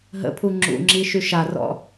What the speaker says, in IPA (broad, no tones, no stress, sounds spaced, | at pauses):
ɦ ə̰ pʰ u ŋ͡ǁ ṵ ŋ͡ǁ i ʃ y ʃ a r ɔ̰